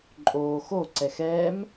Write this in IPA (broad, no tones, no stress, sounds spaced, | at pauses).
ǃʼ oː x o ǀ ɛ x ɛ m